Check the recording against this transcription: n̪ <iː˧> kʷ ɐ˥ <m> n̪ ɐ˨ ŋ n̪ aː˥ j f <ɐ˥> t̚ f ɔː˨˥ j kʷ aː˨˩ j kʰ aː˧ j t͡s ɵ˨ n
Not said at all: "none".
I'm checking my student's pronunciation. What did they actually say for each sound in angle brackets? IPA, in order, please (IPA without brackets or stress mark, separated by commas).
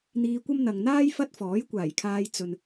iː˧, m, ɐ˥